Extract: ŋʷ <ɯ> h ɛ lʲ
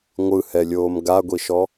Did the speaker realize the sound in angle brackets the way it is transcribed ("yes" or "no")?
yes